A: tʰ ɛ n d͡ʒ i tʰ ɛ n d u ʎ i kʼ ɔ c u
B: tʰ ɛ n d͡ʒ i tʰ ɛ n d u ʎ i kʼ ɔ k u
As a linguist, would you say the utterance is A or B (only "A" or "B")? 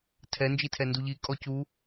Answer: A